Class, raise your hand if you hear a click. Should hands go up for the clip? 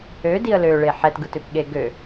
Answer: no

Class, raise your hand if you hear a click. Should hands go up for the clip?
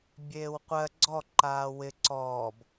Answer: yes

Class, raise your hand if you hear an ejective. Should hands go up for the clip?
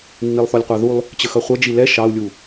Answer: no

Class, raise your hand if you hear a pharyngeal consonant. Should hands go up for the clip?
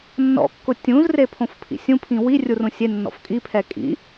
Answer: no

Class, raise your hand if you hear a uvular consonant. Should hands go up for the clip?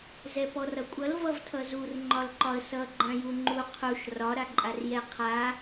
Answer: yes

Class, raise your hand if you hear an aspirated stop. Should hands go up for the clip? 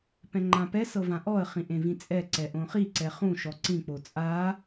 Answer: no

